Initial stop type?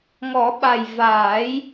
implosive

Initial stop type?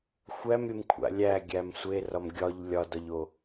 aspirated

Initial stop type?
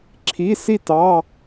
click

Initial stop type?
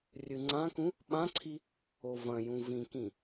click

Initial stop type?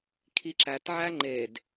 aspirated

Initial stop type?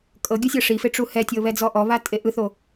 ejective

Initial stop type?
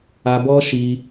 plain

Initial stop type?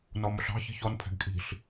aspirated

